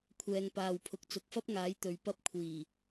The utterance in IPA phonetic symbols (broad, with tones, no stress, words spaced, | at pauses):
kʷʰɛː˨ŋpaː˨wpʰʊ˨k̚ t͡sʊ˨k̚fɐ˥p̚ŋaː˨˥j t̪ɵ˨ɥpɐ˥p̚kʷʰiː˨˩